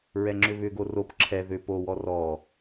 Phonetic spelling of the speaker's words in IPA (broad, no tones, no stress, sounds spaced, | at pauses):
ɹ ɛ ŋ͡ǁ ʏ β ʏ ɡ o r o p ǁʰ ɛ ð ʏ p o w ɔ r ɔ